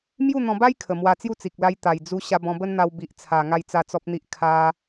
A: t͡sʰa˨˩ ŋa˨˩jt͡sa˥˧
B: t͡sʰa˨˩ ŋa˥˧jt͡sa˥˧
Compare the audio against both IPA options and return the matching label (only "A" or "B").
B